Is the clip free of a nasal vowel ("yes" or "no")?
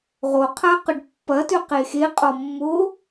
yes